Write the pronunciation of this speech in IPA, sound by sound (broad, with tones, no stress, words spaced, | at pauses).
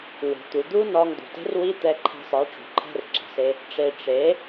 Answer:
wo̤˨t̪u˨d̪u˦ nɒ˧ŋd̪ṳ˨te̤˦rwi˦ t̪ɛ˧ǃʰɛ̤˧sˤe˨˦ʈ͡ʂṳ˨ ǃʰɛ̤˦rǁɛ̤˨se˦ | ʈ͡ʂe˧ ʈ͡ʂe˨˦